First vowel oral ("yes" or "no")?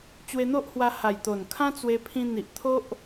yes